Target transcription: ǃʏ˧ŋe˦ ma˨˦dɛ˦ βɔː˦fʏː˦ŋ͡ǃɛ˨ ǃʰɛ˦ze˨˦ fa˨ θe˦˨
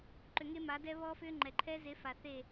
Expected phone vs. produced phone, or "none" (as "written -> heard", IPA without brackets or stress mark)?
none